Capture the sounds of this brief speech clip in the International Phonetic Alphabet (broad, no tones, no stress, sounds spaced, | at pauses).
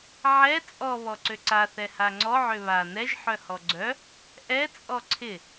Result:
ʕ ɛ t͡sʼ ɔ β ɔ ǀ ø ǀ a θ ɛ h a ŋ͡ǀ ɔ ʕ ø β a n ɛ ʒ ħ œ h ɔ ɡ͡ǀ œ | ʔ ɛ t͡sʼ ɔ ǀʰ ɪ